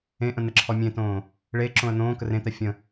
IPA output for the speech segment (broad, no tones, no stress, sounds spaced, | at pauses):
ẽ ʔ ə̃ n̪ ə ǁʰ ɔ mʲ ẽ t õː | ɭ e ǁ õ ə̯ n̪ õː k ə r ẽ t̪ æ fʲ ə̃